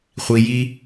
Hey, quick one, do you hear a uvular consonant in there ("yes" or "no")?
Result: yes